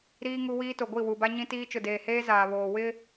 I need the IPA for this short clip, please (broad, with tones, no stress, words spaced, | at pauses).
ɾiː˦ ŋu˦wiː˦ to˨ɡʷi˦˨wu˨ba˦ ɲĩ˦tiː˦ t͡ʃʊ˨deː˨heː˦ zaː˨βoː˨ wɪ˦